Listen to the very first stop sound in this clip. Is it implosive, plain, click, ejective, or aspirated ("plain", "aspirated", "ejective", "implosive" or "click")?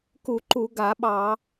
plain